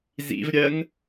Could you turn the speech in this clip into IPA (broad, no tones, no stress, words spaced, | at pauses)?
zḭvɾʲɜŋ